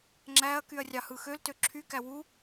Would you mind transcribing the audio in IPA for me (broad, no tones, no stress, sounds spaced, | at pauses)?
ŋ͡ǁ æ ɐ̯ k y ɐ̯ rʲ ɑ h ɯ x ø l t ø ǁʰ y k æ w u